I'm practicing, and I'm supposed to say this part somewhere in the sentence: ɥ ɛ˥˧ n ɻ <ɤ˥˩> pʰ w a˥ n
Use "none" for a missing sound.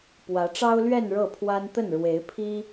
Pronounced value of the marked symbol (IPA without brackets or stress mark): ɤ˥˩